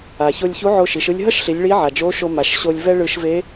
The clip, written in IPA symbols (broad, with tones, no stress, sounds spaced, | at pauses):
a˩ ç o˧ lʲ ç u˧˥ ʕ o˧ ʃ i˩˧ ʃ ɯ˧ lʲ ɦ ʌ˥ ʃ ɬ i˩˧ lʲ ɭ i˧˥ ʕ a˩ d͡ʒ o˧˥ ʃ o˧ m a˩ ʃ ɕ o˧ lʲ v ɛ˥ ɭ ɯ˧ ʃ v e˧˥